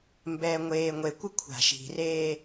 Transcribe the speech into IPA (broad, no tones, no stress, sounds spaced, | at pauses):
m b ɛː ŋʷ eː ŋʷ e kʷ ɪ kʷʰ a̤ ʃ i̤ r eː